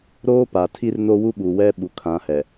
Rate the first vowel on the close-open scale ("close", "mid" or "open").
mid